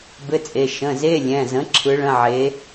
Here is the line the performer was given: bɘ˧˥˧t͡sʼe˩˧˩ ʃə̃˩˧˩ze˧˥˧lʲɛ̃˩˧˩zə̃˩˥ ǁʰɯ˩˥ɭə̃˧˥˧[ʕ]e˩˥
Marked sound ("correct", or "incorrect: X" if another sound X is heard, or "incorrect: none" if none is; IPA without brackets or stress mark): correct